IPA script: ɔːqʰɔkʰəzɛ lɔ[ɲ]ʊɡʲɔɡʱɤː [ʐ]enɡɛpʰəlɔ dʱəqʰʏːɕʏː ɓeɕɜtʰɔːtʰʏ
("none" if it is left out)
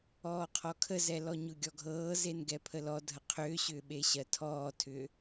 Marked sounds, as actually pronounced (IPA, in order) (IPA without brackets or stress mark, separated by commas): ɲ, z